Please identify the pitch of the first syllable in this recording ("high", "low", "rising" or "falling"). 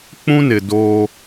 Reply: high